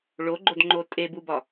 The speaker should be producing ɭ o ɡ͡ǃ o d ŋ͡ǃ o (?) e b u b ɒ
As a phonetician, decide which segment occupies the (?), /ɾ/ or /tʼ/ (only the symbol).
tʼ